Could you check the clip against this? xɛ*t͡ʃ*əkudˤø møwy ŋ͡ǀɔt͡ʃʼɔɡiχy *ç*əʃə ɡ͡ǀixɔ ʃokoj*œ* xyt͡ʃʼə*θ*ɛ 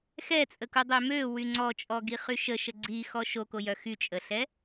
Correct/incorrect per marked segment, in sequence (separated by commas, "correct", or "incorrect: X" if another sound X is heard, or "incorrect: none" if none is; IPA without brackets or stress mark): incorrect: t͡sʼ, incorrect: ʃ, correct, incorrect: ɬ